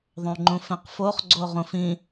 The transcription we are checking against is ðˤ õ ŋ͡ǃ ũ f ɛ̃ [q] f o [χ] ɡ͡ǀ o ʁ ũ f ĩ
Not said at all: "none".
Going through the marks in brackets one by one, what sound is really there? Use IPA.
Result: q, χ

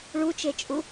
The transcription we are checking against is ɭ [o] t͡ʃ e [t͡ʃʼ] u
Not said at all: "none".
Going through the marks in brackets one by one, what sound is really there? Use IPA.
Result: u, t͡ʃʼ

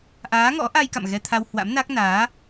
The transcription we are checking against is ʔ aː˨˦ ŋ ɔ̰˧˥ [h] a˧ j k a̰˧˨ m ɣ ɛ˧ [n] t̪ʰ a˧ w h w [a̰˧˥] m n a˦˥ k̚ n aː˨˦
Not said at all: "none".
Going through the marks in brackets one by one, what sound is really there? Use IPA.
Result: ʔ, none, a̰˧˥

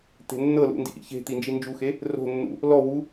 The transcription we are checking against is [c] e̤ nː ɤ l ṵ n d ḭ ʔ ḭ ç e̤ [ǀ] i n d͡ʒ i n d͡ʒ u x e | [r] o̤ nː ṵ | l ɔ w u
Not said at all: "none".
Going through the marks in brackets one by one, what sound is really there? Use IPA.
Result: t̪, t̪, r

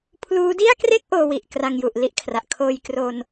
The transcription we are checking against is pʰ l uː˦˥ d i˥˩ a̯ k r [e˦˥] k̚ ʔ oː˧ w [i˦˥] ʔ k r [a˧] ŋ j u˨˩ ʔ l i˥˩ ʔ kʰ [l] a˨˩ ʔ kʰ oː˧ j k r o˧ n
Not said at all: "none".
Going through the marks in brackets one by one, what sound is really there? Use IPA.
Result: e˥˩, i˨˩, a˧, r

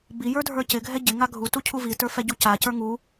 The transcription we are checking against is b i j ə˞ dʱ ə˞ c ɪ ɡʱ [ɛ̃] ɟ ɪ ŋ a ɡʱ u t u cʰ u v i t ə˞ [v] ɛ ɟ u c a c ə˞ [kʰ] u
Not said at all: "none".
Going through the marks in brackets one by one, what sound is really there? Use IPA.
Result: ɛ, f, ŋ

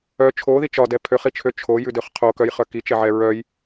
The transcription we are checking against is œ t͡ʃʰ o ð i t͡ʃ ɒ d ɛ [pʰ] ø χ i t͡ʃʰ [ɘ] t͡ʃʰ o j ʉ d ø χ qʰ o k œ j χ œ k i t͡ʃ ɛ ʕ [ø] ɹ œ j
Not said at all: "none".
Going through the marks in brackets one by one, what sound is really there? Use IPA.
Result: pʰ, ø, ɛ

